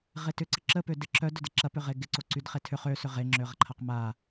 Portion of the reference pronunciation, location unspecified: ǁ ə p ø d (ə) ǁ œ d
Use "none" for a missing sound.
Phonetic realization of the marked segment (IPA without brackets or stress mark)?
ɪ